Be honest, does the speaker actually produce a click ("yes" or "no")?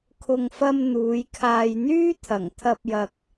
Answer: no